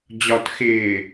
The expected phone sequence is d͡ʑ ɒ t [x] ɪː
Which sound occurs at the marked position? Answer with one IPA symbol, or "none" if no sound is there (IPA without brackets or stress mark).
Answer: x